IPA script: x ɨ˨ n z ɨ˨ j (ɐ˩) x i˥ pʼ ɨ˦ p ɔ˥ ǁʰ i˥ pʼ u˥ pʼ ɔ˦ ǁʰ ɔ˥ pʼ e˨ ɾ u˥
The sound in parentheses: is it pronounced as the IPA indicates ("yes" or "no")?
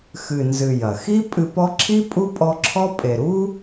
yes